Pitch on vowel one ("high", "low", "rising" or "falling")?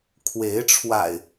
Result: rising